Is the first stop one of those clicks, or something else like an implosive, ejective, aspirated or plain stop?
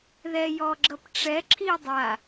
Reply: click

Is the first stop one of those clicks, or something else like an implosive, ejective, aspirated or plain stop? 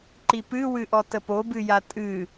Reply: click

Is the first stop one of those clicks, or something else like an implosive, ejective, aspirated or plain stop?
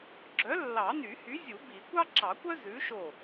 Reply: click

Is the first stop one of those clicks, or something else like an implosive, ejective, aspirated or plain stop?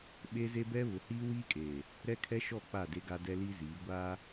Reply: implosive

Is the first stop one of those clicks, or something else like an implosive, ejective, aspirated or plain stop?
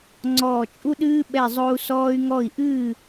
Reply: click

